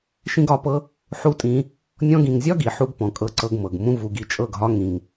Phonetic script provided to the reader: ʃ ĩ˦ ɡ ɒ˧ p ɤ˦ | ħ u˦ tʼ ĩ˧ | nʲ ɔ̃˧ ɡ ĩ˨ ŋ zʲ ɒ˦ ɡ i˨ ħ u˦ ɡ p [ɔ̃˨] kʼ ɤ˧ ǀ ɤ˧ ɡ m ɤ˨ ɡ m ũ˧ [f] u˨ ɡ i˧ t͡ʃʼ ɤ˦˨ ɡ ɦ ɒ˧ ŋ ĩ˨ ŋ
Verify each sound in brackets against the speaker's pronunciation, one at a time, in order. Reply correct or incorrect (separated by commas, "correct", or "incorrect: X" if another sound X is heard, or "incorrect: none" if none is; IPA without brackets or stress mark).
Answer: correct, incorrect: v